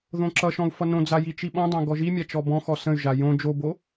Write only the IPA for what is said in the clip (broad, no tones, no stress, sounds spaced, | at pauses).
ð õ ǁ ʌ ʃ ɔ̃ u̯ f ʌ n õ d͡z a j i t͡ʃ i ɓ ɔ̃ dˤ ã ɡ ɔ ʒ i mʲ a t͡ʃ ɔ b ɔ̃ x ɔ s ə̃ y̯ ʒ a j õ d͡ʒ o b o